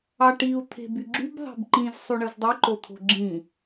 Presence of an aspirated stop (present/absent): present